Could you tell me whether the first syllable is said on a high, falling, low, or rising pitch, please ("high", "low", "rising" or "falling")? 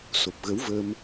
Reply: low